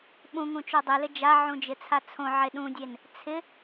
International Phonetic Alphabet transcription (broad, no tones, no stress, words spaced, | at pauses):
ɓũŋũt͡ʃo dˤɪlɪ d͡ʒaʕũd͡ʒɪt͡sʰa t͡sʰõʕe ɗũdʲen | t͡sʰɪ